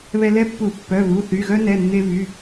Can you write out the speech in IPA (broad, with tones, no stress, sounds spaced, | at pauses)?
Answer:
β ɛ˧ l ɛ˥ pː u˧˩˧ pː œ˩˧˩ β u˩˧˩ θ y˩˧˩ ɣ œ˥ n ɛ˩˧˩ nː e˧ v y˩˧˩